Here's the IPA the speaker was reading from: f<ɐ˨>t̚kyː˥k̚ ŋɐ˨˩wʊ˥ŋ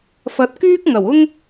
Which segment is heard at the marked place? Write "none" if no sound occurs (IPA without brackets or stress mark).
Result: ɐ˨˥